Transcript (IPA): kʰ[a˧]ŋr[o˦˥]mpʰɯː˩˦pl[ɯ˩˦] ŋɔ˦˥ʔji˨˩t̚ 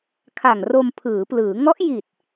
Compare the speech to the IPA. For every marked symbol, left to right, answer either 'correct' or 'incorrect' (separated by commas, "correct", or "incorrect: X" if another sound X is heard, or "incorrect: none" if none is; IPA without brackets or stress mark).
incorrect: a˨˩, incorrect: o˧, incorrect: ɯː˩˦